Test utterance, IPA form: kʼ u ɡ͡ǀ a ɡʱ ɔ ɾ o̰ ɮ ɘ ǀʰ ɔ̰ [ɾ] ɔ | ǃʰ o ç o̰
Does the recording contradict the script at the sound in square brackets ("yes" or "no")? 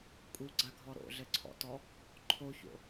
yes